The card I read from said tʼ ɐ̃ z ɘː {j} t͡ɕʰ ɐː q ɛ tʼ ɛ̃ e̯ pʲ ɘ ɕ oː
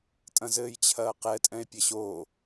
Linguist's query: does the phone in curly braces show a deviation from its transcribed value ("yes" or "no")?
no